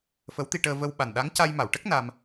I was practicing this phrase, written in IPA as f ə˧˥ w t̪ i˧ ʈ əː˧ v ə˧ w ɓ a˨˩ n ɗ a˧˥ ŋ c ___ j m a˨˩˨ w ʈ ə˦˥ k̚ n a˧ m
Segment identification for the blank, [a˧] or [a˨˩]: a˧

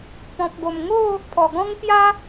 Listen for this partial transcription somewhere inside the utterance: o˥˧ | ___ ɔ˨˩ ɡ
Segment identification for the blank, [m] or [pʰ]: pʰ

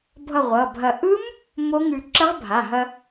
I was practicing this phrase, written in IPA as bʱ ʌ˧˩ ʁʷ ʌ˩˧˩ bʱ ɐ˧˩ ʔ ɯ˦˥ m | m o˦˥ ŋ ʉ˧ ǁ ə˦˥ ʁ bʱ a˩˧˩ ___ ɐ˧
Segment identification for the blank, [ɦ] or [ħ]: ɦ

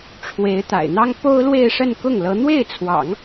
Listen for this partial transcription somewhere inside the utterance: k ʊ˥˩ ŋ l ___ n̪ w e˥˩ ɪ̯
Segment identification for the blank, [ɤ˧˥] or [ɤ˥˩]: ɤ˧˥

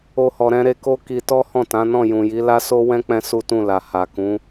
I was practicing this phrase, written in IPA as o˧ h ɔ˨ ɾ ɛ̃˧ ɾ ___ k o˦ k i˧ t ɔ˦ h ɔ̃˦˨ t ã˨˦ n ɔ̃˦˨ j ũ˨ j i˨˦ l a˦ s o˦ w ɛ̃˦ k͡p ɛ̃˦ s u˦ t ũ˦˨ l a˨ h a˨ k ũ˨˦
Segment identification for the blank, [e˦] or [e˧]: e˧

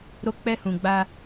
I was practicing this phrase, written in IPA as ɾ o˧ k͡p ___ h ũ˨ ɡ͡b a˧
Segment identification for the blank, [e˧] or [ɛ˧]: ɛ˧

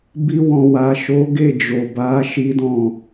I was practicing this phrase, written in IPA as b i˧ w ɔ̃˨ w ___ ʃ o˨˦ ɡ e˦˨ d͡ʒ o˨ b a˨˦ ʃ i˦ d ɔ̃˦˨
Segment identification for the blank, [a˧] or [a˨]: a˨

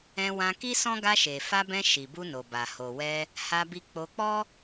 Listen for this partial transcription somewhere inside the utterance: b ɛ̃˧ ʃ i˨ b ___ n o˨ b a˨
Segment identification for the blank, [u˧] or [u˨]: u˧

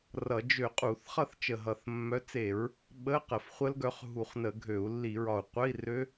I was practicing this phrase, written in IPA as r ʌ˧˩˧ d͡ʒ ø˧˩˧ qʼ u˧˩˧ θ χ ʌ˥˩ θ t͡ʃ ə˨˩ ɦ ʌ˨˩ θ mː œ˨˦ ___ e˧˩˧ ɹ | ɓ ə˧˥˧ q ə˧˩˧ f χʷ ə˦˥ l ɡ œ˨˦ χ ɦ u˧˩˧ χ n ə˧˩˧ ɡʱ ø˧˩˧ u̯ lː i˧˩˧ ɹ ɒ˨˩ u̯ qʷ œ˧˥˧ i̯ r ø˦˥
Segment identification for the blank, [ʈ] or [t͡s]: t͡s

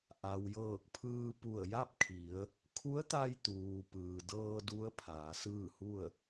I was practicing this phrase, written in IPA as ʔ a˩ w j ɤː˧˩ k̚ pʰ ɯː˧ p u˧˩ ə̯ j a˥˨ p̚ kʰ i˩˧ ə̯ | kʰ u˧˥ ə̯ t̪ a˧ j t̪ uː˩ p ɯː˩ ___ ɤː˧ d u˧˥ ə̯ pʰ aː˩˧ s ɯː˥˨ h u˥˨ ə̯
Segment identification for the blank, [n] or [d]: d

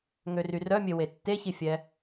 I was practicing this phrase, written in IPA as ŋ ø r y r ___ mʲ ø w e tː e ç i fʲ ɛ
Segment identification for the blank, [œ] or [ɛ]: œ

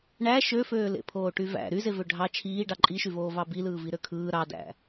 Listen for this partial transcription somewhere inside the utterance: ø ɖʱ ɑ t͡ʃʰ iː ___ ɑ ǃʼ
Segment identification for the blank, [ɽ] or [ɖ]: ɖ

